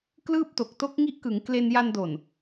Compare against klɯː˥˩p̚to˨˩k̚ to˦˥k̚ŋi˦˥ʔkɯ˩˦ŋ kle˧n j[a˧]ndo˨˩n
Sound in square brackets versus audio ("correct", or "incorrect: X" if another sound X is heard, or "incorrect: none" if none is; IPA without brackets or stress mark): correct